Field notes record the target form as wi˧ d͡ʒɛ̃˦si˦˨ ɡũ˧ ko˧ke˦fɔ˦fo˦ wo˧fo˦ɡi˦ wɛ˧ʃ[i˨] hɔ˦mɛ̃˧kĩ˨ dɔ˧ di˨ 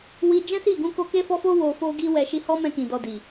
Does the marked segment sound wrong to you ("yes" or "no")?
yes